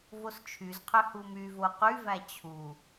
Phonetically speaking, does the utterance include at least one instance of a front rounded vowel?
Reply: yes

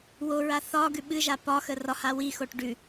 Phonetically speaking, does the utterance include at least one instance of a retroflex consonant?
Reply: yes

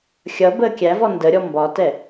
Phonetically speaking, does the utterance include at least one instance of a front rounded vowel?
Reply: no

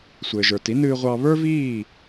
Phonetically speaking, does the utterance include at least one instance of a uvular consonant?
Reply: yes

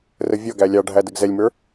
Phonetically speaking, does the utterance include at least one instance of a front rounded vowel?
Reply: no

